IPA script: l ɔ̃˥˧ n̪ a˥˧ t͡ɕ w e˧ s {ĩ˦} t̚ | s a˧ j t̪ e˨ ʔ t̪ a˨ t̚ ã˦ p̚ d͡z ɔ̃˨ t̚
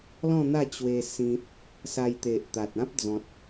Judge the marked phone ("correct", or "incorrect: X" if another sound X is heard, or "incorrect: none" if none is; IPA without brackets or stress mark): correct